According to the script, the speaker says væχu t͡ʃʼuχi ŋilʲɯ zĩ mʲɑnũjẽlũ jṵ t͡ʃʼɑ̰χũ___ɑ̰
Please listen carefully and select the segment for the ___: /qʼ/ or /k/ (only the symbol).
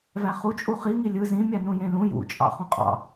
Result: qʼ